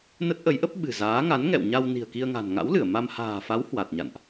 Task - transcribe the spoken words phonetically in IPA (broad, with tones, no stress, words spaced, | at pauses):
nə˦˥t̚ʔə˨˦jʔə˦˥p̚ ɓɨ̤˨˩zaː˨˦ ŋa˨˦nŋɛ̰˧˨wɲa˧w ni̤˨˩ə̯ki˧ə̯ŋa̤˨˩n ŋa̰˧˥wlɨ˧˩ə̯ ma˧m ha̤ː˨˩fa˨˦w hwa˨˩t̚ɲa̰˧˨nʔ